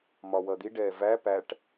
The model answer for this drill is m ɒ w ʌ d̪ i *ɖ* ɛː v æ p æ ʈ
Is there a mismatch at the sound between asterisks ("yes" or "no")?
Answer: no